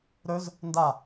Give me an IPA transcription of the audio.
ɾ ɵ z | n d a

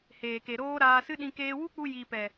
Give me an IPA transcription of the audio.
h eː˨ k e˨ ɾ oː˦ ɾ aː˧ s ɨ˦ ɗ ĩ˧ k eː˧ w u˦ k͡p u˧ j iː˨ p ɛ˨

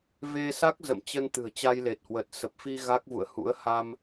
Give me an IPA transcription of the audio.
v e˧ s a˦˥ k̚ z ə̰˧˨ m t͡ɕ ə˧ n t̪ ɨ̤˨˩ ə̯ t͡ɕ a˧ j l e˨˩ t̚ h w ə˨˩ t̚ s ə˨˩ p̚ f i˧ ɣ a˦˥ k̚ v ṵ˧˨ ə̯ h ṵ˧˥ ə̯ h a˧ m

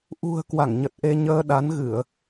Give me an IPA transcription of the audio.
ʔ ṳ˨˩ ə̯ k w a˧˩ ŋ ɲ ə˨˩ t̚ ʔ e˧ ɲ əː˧ ɗ a˨˦ n ɣ ɨ˧˩˨ ə̯

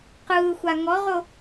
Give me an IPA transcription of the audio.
q ɯː xʷ a ŋ ɔ ʁ o

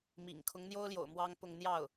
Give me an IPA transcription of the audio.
m ḭ˨˩ ŋ kʰ ʊ˧˥ ŋ n̪ j o˥ ʊ̯ l j o̰˨˩ ʊ̯ m w ɑ˥ ŋ p ʊ˥˧ ŋ n̪ j ɑ˥˩ ʊ̯

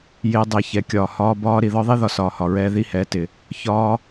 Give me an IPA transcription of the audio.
j ɪː˦ dˤ ɛ˧ ç ɛ˨ kʲ ɒː˨ h ɒː˧ b ɒː˦ ɾ i˨ ð ɒ˦ ðˤ i˦ ð ɒ˨ s ɒː˨ h ɒ˨ ɹ ɛː˧ ð i˦˨ h ɛː˨ t ɪ˨ | ç ɒː˦

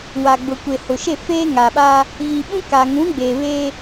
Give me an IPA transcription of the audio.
w a˨ ɡ͡b ʊ˨ kʷ e˨ h ʊ˨ ʃ e˦˨ f eː˦ ŋ a˨ ɓ a˦ | ɣ i˨ ɓ ũ˦ k a˨ ŋ ũ˨˦ ɡ͡b eː˨ β eː˦

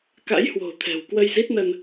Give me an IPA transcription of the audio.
k a̰˧˥ j h w o̤˨˩ t̪ʰ ɛ̤˨˩ w k w ə˧ j z i˦˥ t̚ n ə˧ n

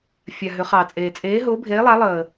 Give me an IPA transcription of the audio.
fʲ a˨ ɦ ʏ˨˦ χ ɑː˨ t͡sʼ eː˨ t͡sʼ eː˨˦ ɦ ʊː˨˦ bʱ eː˨˦ lˠ a˨˦ lˠ əː˨

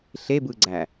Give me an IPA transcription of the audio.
ɬ e b ɯ ɡ͡ǀ æ

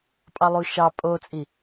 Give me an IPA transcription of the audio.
pʼ ɑ lˠ u ʃ ɑ pʼ o t͡sʼ i

